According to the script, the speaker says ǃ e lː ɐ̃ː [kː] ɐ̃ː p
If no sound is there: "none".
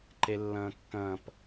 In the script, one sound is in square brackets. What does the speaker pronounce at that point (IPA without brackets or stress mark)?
kː